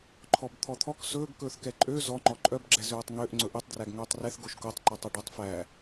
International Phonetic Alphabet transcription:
ǃʰ ɔ b t̪ʰ ɔ t̪ʰ ɔ k s ɵː ɡ k ɵː θ k ɛ ǃʼ ø z ɔ ŋ͡ǃ ɔ ǃʼ œ b ɡ͡ǁ ɛ z øː tˤ ŋ ø ʔ ŋ͡ǀ ɵ ʔ e tˤ d r æ ɡ ŋ ɵː tˤ r ɛ θ ɡ o ʃ k o tˤ ǃ ɔ tˤ œ ɖ ɵ tˤ f æ

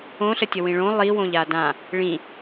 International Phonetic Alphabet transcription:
õ ɬ ə tʲ ə w ĩ ɭ õ lˠ i w õ ʎ a d ã | ɭ ĩ

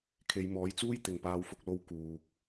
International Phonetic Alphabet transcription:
kʰ e˨˧ j m ɔː˨˥ j t͡s uː˥ j t̪ ɪ˨ ŋ p aː˧ w f ʊ˧ k̚ l o˧ w k uː˨ k̚

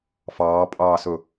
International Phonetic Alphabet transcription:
f ɑː pʼ ɑː s ɵ

